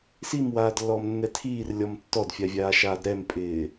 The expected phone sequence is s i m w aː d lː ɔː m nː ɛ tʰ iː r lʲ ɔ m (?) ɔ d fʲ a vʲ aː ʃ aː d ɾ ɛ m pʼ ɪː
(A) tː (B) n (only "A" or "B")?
A